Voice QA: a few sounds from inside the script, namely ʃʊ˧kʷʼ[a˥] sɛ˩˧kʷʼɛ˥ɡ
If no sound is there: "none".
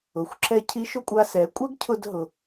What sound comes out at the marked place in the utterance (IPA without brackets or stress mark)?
a˧